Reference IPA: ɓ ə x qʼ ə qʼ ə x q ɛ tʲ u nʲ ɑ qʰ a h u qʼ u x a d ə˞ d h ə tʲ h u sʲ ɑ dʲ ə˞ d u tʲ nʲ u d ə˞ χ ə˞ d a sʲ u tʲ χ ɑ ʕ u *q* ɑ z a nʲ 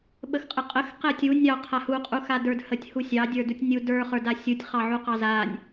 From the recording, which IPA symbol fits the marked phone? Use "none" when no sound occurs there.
q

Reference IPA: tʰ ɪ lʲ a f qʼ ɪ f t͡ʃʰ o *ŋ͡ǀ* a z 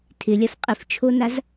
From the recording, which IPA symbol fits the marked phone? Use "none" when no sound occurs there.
n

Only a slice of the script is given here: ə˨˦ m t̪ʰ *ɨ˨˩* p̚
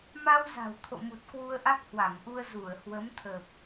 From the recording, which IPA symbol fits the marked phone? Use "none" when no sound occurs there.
ə˨˩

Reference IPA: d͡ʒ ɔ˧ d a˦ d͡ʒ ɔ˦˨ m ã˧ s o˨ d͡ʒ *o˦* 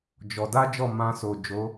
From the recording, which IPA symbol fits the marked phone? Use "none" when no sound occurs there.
o˨˦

